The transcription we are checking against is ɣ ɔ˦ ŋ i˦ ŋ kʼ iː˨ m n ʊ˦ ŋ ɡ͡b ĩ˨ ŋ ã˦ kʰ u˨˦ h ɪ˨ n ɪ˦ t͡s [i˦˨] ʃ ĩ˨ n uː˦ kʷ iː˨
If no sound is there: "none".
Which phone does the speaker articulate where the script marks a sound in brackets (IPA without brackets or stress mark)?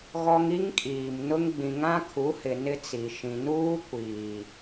i˨